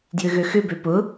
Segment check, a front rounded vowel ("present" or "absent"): present